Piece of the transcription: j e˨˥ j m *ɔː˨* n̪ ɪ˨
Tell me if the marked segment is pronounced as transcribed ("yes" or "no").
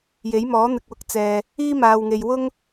no